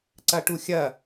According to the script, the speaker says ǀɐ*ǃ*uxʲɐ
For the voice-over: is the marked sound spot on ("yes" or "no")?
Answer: no